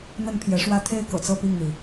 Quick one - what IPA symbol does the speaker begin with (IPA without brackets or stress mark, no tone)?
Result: n̪